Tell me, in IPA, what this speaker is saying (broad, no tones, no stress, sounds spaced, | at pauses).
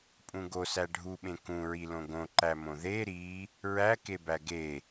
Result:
pʼ ũ ɡ o s æ ɖʱ u ɓ ẽ k ũ ɹ i l õ ɡ õ ǃ æ m õ ð e ɾ i | ɹ æ k e b æ ɡ e